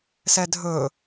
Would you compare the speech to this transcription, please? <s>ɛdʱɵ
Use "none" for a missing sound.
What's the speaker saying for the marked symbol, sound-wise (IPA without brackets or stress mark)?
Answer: s